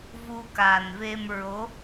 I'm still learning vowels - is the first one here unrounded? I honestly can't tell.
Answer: no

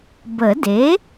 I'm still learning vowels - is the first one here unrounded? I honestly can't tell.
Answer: yes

